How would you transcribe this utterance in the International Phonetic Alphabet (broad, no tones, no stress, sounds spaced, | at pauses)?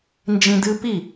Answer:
n d͡ʒ ĩ d ɨ p i